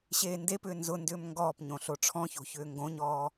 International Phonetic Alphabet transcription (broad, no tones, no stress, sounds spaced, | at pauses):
ɕ eː n d e p ʏː n z ʊ n d ʏː m ŋ ɡ ɔː p ɲ õ ɬ o ʈ͡ʂʰ ɔ̃ ç o̤ ç ʏː ŋ ɡ õ ɲ ɔː